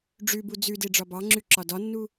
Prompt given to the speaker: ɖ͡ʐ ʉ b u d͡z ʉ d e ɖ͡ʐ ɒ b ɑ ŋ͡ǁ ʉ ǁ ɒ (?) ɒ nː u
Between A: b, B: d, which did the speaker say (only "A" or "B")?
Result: B